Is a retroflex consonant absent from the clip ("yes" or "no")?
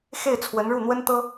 no